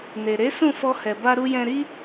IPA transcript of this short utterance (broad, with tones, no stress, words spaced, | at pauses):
ne˨ ɾe˨˦sũ˦˨ fɔ˧hɛ˨ ba˧ɾu˧jɛ̃˧ɾi˦